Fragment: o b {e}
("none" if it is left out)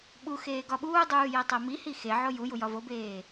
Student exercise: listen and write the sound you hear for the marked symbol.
eː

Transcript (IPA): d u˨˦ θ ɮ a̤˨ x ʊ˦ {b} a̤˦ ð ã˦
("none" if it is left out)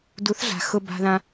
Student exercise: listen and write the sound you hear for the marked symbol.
b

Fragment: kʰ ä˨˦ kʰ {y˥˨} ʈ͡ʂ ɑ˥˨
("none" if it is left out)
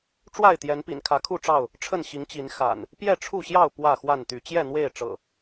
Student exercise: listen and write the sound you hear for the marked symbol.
u˥˨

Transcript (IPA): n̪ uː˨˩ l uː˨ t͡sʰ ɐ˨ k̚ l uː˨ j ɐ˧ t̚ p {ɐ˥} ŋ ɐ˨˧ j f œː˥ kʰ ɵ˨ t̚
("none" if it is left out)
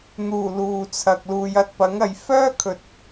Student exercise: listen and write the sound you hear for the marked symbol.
ɐ˨˥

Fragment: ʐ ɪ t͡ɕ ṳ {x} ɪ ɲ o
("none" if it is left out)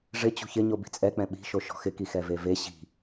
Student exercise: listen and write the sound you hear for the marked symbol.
ç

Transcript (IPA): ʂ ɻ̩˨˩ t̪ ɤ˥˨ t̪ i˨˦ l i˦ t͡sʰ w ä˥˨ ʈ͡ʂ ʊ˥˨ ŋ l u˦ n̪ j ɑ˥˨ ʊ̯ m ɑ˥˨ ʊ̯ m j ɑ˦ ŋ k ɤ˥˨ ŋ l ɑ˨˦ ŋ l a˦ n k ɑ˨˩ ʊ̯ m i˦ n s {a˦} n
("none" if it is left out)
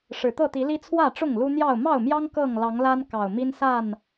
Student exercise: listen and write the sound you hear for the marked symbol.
a˥˨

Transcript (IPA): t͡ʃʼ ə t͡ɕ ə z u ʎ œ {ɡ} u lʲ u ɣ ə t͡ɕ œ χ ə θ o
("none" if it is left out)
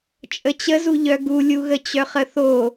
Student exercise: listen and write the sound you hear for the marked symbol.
ɡ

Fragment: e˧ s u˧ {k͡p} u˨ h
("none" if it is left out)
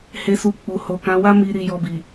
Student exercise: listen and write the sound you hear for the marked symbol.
k͡p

